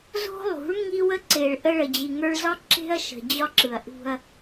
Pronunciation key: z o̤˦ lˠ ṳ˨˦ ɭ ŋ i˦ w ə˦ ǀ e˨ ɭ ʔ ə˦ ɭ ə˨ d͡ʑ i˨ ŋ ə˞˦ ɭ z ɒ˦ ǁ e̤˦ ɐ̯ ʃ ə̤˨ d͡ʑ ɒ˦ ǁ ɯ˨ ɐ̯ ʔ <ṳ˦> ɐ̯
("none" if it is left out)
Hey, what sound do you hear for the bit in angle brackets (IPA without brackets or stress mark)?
ṳ˦